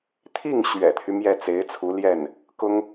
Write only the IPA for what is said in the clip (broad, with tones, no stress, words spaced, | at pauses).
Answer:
t̪ʰi˥˩ŋ ɕɥɛ̰˨˩t̪ʰy˦ mjɛ˥˩ t͡se˧˥ɪ̯t͡sʰu˧˥ljɛ˥˩n | kʊ˥ŋ